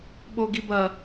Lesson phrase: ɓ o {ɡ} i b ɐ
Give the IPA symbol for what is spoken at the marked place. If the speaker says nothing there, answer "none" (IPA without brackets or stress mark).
ɡ